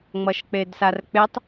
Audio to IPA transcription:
ŋ͡m ʌ ʃ k͡p e d s a r k͡p e tˤ

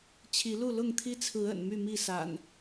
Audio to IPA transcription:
t͡ɕʰ i˨˦ l u˥˨ l ʊ˥˨ ŋ t̪ʰ i˦ t͡sʰ ɹ̩˨˦ ə̰˨˩ n m y˥˨ m i˥˨ s a̰˨˩ n

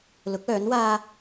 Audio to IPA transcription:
l ʊ˨˥ k̚ œː˨˥ n w aː˥

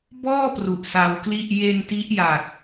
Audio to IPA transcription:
b ɔː˥˩ p r u˨˩ ʔ s a˧ w k l i˥˩ ʔ j e˧ n t i˦˥ ʔ j a˨˩ k̚

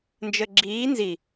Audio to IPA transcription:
n d͡ʒ ə ɡ͡ǁ iː n z i

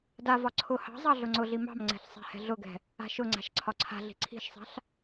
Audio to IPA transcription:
d a v ɒ ǀʰ ʊ h ɑ̤ zˤ ɑ ɮ ʊ ŋ͡ǀ ʊ ɮ i m ɑ̤ m ŋ͡ǀ ɛ̤ ɬ sˤ ɛ̤ h ɛ̤ ɮ ʊ ɡ ɛ̤ | a̤ ʃ ʊ ŋ͡ǀ a̤ ʃ ǀʰ ɒ ǀʰ a̤ ɮ i̤ ǀʰ i̤ ʃ sˤ a̤ ɬ

